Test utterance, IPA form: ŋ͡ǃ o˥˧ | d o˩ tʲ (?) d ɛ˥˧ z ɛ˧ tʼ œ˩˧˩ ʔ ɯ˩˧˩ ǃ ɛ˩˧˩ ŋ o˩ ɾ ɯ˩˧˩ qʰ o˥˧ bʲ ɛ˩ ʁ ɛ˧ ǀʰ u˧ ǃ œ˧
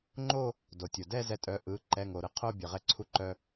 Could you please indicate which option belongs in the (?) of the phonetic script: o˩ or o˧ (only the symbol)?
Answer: o˩